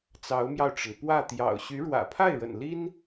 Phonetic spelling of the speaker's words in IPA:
t͡s ɑ˧˥ ʊ̯ m j ɑ˧ ʊ̯ ʈ͡ʂ ə˩ n p w ä˥˩ t̪ j ɑ̰˨˩ ʊ̯ ɕ y˧˥ ɻ w ä̰˨˩ pʰ a˥˩ ɪ̯ ɻ ə̰˨˩ n l i˥ n

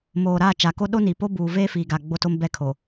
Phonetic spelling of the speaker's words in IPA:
m oː˨ ɾ aː˦˨ t͡ʃ a˨ k o˦ ɗ o˦ n i˨ p o˦ b uː˨ v eː˦ f iː˨ ɡ a˨ ɡ͡b o˦ t o˦ m b ɛ˦ kʰ o˨

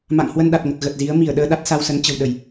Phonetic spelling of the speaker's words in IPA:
m a̰˧˨ ŋ h w ə˧ n ɗ a˨˩ t̚ ŋ ə˨˩ t̚ ɣ ə˨˩ t̚ z i˨˦ ə̯ m i˧˩ ə̯ ɗ əː˧ ɗ a˦˥ t̚ s a˧ w s ə˨˦ n t͡ɕ ə̤˨˩ w ɗ ə˧˩˨ j

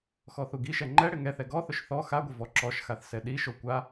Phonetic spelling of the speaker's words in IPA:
x ɔ θ u ɡ i ʃ ɛ ŋ͡ǃ ɛ ɽ ɪ ŋ ɛ θ ɛ ɡ ɔ θ ʊ ʃ θ ɔ x a ɡʷ ɪ v ɔ ǁ ɔ ʃ x a θ s ɛ ɗ i ʃ o kʷ a

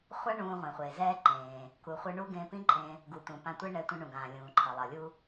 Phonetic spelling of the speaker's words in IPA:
χʷ a˥ ɳ ũː˧ ʁʷ ẽ˩ χʷ eː˩ z ɛː˥ ǃ ẽː˩ | k u˩ χʷ ɯ˧ ɳ u˥ ɡ ẽː˧ p ĩ˥ ǃʼ ẽ˧ | ɡ u˩ t̪ ũ˩ p ã˧ tʷ e˥ ɳ ɛ˧ tʷ ĩ˧ ɳ ũ˩ ɡ ãː˩ lʲ ũː˩ ǃʰ ʌ˩ lˠ ʌ˩ lʲ u˥

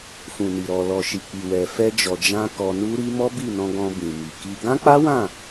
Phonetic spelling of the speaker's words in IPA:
f ũ˨ n i˨ ɾ ɔ˨ l ɔ˨ ʃ i˨ k͡p i˨ w ɛ˨ f ɛ˧ d͡ʒ ɔ˨ d͡ʒ ã˧ k ɔ˧ n u˦ ɾ i˦ m ɔ˦ b i˦˨ n ɔ̃˧ ɡ ɔ̃˧ b ĩ˨ m i˨ k i˧ ɡ ã˦ k͡p a˦ w ã˦˨

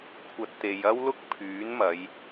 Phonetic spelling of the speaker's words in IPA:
kʷʰ ɐ˧ t̚ t̪ e˨ j ɐ˥ w l ʊ˥ k̚ pʰ yː˨˥ n m ɐ˨˧ j

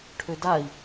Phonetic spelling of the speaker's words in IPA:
ʈʰ ø d a i̯

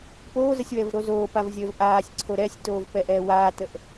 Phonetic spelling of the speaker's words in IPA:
p oː z ə sʲ w ɛ v ɾ o z oː p a v zʲ əː v ʔ aː sʲ ǀʰ o ɾ ɛ sʲ t oː v p ɛ ʔ ɛː w aː t ə ʔ

